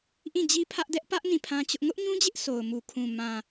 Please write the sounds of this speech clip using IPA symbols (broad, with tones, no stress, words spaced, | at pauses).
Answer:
ʔĩ˦˨ d͡ʑi˦pʰä˦ʔdɛ˦ʔ pä˦ʔ nĩ˦˨pʰã˦t͡ɕʊ˦ʔ ŋʊ˦ʔɲũ˦d͡ʑɪ˦ʔ sʰo˨ʊ̯mu˨kʰũ˨ mã˨